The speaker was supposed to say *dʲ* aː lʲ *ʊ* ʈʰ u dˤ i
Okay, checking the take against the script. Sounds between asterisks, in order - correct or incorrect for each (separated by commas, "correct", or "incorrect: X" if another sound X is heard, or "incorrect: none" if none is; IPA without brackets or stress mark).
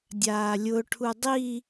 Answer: correct, correct